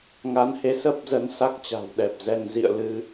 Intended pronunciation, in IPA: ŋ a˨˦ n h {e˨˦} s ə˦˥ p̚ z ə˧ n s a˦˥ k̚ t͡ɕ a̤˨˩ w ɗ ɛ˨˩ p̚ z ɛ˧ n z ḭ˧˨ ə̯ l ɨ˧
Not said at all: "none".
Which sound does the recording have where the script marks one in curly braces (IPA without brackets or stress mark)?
e˨˦